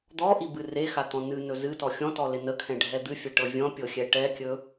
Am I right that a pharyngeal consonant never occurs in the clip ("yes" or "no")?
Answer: yes